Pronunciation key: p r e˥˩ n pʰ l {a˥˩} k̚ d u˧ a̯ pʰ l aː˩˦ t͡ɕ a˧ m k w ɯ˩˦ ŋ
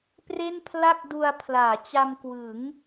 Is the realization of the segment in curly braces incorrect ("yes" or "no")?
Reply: no